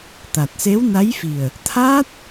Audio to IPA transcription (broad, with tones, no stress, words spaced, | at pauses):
t̪a˨˩t̚se˧˥wna˧˥jfi˨˩ə̯ | t̪ʰa˦˥t̚